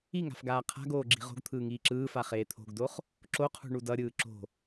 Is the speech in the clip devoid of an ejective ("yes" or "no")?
yes